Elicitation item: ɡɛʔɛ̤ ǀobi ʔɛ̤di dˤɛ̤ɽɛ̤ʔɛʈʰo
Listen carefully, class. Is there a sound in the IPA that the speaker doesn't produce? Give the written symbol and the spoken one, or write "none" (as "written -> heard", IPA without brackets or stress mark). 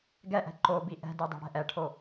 ǀ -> ǃ